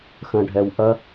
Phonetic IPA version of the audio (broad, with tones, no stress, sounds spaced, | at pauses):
x ə̃˨ ɖʱ ɛ˨ w ʔ ɐ˧